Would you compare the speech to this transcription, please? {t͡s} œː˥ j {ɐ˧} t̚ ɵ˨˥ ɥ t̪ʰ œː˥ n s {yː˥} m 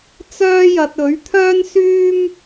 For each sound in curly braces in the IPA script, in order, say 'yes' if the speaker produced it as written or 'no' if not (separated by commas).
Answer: yes, yes, yes